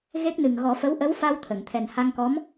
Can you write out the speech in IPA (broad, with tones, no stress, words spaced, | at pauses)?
ɣe˦˥k̚ nɨ˨˩ŋ ɣɔ˨˩˦fə˧˥w ʔə˧˥wfa˧w t̪ʰə˨˩˨ŋt̪ʰɛ˨˩n ha˧ŋkɔ˧˥m